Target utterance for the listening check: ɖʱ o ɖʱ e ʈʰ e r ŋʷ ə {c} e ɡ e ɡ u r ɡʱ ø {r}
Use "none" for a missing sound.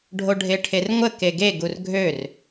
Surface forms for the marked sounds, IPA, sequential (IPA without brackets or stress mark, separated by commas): k, r